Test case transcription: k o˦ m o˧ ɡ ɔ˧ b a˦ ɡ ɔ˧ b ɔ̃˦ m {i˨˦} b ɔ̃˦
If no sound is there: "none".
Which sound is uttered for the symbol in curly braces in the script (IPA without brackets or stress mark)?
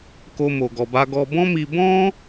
i˧